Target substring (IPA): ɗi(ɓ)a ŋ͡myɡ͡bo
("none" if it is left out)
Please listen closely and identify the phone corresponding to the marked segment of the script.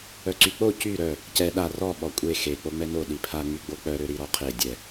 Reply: pʰ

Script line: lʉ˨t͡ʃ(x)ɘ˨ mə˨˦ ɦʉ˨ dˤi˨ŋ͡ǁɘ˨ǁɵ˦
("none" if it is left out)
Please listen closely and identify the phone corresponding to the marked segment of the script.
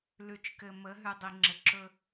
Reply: k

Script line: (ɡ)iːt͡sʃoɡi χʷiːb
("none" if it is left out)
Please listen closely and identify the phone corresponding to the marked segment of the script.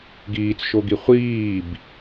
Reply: ɡ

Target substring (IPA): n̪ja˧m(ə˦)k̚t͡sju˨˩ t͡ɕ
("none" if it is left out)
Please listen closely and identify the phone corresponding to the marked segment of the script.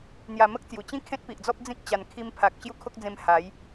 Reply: ə˦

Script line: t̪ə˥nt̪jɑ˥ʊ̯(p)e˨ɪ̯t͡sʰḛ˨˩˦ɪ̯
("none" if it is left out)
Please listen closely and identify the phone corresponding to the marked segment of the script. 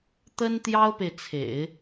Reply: p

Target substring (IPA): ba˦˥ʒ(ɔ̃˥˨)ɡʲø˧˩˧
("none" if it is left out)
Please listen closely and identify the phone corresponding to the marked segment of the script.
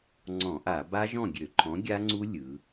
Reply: ɔ̃˥˨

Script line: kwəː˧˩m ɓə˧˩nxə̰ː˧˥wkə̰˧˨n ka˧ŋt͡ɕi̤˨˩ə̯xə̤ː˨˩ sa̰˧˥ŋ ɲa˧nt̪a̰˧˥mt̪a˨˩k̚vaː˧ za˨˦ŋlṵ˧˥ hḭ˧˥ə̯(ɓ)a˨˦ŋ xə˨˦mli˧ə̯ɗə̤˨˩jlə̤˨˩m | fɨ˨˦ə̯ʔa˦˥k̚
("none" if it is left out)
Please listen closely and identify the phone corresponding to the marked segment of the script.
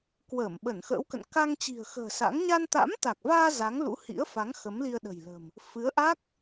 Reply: f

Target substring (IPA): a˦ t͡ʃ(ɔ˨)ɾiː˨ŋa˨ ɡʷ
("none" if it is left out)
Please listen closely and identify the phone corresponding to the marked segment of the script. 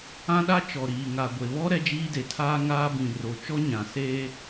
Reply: ɔ˨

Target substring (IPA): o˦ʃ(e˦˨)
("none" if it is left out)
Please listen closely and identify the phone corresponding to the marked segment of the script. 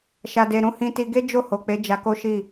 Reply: i˦˨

